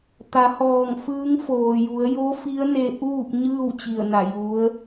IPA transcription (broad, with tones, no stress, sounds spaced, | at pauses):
t̪ a˩˧ h ɔː˧˩ ŋ f ɯː˧˥ ŋ f oː˩ j u˩˧ ə̯ j o˧˥ f i˧˥ ə̯ n e˧ ʔ uː˥˨ p̚ ɲ ɯː˥˨ w t͡ɕ i˧˩ ə̯ n a˧˩ j u˧˥ ə̯